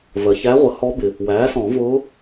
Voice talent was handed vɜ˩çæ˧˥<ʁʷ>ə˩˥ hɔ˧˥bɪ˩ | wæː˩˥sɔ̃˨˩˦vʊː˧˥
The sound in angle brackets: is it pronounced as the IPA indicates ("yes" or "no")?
yes